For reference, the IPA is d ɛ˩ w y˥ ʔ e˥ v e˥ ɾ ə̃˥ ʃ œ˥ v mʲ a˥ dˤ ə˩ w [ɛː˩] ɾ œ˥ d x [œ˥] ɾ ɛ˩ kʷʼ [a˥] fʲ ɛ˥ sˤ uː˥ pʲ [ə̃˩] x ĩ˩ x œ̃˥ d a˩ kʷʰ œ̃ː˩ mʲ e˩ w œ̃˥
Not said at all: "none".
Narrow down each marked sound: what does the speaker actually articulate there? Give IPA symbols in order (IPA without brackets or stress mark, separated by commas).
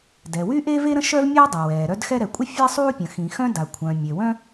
ɛː˩, ɛ˥, ə˥, ə̃˩